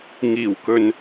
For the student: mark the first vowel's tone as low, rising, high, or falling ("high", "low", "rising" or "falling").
low